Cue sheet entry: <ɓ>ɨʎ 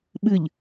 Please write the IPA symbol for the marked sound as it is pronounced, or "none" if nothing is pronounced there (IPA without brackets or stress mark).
ɓ